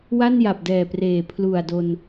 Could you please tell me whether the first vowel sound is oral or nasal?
oral